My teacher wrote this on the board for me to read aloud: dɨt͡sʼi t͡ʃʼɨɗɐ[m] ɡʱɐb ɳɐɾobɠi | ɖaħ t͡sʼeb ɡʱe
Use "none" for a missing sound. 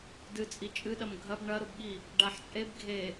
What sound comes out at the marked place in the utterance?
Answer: m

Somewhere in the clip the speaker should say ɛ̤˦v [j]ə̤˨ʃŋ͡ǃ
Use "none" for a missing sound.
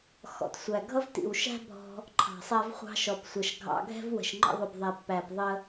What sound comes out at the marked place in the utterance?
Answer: w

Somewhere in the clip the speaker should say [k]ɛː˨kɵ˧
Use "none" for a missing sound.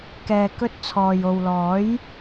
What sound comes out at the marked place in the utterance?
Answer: k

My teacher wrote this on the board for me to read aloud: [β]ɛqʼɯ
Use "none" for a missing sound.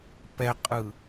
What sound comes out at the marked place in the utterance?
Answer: p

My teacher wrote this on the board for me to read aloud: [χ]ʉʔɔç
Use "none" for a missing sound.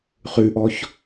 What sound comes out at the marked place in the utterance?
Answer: χ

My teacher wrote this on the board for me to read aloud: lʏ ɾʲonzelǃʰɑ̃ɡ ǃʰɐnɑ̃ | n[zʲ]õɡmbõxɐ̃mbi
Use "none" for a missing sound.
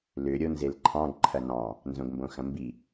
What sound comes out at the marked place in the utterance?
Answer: z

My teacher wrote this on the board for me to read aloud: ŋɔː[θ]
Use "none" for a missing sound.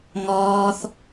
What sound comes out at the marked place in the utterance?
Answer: θ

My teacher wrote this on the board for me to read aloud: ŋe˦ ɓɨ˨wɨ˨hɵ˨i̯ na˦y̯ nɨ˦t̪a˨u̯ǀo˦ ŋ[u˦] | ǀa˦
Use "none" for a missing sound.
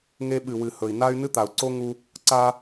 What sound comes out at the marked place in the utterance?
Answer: u˦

